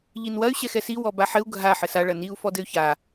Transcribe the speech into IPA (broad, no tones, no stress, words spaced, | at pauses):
ʎinwɐy̯ ɕɛxɛsi wɔbaħɘu̯ ɡʱa ħɘsa ɭɐniu̯ fɔdɘy̯ça